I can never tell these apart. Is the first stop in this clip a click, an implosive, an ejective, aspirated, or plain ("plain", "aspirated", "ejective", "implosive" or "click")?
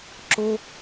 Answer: click